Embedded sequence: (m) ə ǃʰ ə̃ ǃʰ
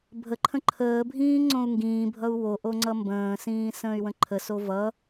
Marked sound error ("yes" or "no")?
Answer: yes